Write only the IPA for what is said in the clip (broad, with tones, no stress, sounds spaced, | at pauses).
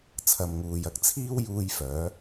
t͡sʰ ɐ˨ m ŋ uː˨ j ɐ˨ k̚ t͡sʰ iː˥ w j uː˧ j f œː˨˥